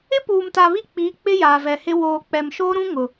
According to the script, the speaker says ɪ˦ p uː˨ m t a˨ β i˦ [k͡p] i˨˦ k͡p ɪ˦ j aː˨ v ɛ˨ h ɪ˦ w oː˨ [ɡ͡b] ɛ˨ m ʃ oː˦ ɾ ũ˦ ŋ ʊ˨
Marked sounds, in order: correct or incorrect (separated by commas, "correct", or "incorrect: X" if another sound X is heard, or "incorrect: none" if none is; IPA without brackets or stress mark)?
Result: correct, incorrect: k͡p